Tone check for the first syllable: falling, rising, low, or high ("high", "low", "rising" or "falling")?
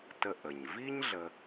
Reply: low